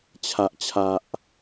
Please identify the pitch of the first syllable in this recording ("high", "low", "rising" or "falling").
low